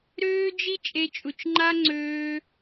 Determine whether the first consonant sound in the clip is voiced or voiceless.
voiced